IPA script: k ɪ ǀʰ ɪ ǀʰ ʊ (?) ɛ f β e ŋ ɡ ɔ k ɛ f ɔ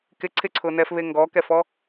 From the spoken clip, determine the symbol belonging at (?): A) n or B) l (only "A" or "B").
A